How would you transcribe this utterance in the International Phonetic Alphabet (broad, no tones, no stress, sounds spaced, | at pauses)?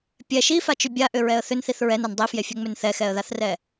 pʲ ɛ ʃ i f a t͡ʃ ʏ bʲ a ʔ ʏ ɹ ɛ ə̯ θ ʏ n θ i θ ɹ ɛ n a n dˤ i f j e fʲ ɛ ŋ͡m ʏ n θ ɛ x ɛ ə̯ ð a θ r ɛ